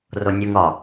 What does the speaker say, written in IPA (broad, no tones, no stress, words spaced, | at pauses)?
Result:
ronʲoŋ ɒ